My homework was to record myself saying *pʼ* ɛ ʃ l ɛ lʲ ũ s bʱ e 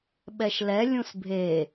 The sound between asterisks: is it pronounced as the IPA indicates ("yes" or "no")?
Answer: no